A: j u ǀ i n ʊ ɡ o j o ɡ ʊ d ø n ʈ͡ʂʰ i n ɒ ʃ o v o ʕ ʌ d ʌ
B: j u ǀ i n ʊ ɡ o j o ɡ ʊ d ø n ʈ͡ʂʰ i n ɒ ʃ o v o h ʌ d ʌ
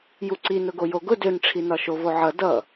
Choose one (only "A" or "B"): A